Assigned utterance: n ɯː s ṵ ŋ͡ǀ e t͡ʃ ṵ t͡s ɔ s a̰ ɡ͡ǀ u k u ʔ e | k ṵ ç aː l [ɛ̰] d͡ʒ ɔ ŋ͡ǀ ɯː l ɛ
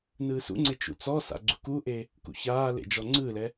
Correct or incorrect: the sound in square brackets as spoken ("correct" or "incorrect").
incorrect